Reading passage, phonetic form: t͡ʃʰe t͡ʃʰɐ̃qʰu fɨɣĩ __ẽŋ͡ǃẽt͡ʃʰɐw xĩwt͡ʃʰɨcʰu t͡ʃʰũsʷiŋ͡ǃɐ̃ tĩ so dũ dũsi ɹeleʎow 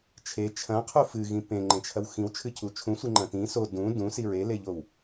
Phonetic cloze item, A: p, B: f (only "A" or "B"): A